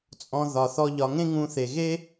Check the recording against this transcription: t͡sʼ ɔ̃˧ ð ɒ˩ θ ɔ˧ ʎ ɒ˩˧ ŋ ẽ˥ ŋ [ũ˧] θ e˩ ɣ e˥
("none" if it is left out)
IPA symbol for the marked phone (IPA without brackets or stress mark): ũ˧